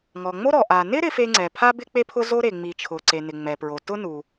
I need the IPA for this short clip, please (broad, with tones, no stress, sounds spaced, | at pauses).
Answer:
ŋ ɔ˩ ŋ͡m o˥ ɾ ɔ˩ ʔ a˩ n ɪ˥ ɾ ɪ˥ f e˥ ŋ͡ǀ ɛ˩ pʰ a˥ b ɪ˥ k͡p e˥ pʰ ʊ˥ z o˥ ɾ e˩ ŋ͡m i˩ t͡ʃʰ ʊ˩ ǀ e˩ n ɪ˩ ŋ͡m ɛ˩ p ɹ o˩ t ʊ˥ n u˩